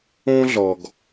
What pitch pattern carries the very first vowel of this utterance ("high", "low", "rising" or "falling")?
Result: high